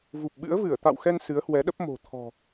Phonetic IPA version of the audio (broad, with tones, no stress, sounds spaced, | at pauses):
v u˨˩ p̚ ɓ ɨ̰˧˥ ə̯ v ɨ˧˩ ə̯ t̪ a̰˧˨ w x ɛ˧ n s ɨ˨˦ ə̯ h w ɛ˨˦ ɗ ə˦˥ p̚ m o̤˨˩ t̪ʰ ɔ̤˨˩